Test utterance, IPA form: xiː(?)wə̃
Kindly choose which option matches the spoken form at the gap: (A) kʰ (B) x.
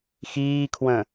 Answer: A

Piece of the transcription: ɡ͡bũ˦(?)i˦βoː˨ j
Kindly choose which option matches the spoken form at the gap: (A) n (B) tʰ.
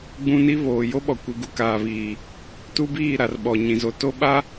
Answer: A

